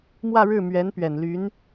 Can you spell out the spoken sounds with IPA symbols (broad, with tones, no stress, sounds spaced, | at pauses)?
m w ä˥˧ ɻ ɻ̩˥˩ m ɥ ɛ˧˥ n p ɥ ɛ˨˩ n l y˧˥ n